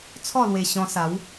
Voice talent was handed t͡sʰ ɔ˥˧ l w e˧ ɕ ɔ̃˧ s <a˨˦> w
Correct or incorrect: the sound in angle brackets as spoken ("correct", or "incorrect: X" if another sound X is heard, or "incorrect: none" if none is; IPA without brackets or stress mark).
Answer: correct